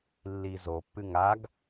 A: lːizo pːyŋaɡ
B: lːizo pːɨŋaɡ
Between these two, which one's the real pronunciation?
B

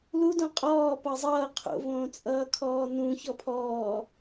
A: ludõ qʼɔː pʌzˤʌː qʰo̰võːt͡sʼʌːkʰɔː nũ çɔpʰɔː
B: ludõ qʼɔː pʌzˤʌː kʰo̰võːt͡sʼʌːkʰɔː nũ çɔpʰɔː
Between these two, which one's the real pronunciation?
A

